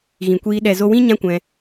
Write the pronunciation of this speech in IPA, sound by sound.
ɣĩ˨kʷiː˧ ɗɛ˨zo˧wĩ˦ ɲã˦kʷɛ̃˧

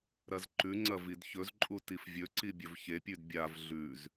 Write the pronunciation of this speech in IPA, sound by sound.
ɾɐzǃʉŋ͡ǀɐ vidçɵzǃʼu tifvʲɵǀi bʲɵvçepʲʉd bʲav ɮʉz

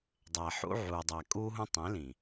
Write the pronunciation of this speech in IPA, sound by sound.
dˤæ˨ħṵ˦ ʕuː˨dˤæː˨kʼuː˦ɦũ˦ tˤĩ˨˦lĩ˨

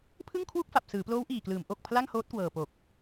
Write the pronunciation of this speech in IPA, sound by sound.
pʰɯ˥˩ŋkʰwu˥˩k̚fa˨˩p̚ sɯː˩˦ploː˦˥wʔiː˨˩klɯː˩˦m ʔo˨˩k̚ pʰla˥˩ŋhoː˦˥t̚kwɤː˨˩po˨˩k̚

